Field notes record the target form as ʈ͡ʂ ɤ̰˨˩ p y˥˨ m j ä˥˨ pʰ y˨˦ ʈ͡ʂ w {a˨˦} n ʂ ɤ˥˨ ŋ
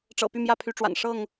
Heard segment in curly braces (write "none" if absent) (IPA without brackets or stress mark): a̰˨˩